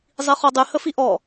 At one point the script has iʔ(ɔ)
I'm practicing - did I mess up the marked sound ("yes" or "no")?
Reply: no